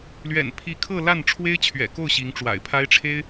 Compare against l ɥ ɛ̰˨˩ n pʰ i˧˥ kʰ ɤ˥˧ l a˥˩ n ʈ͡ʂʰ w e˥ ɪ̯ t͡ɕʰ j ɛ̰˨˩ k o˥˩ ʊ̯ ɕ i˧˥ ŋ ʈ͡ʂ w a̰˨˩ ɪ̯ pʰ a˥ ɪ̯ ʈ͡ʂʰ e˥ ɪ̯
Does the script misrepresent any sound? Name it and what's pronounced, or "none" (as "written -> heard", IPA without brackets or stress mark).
j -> ɥ